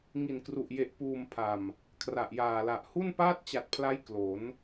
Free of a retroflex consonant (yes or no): yes